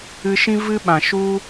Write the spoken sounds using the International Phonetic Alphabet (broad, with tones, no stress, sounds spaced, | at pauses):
ɨ˧ ʃ ĩ˦ v ɨ˦ ɓ ã˨ ʃ u˦